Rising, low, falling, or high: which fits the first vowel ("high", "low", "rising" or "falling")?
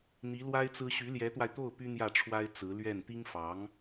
rising